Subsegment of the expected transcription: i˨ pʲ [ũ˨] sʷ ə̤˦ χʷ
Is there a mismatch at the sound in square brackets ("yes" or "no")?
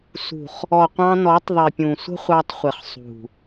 no